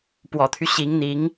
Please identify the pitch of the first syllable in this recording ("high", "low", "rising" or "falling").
low